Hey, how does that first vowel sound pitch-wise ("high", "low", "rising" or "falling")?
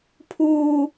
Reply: high